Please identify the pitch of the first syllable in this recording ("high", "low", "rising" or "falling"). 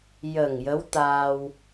low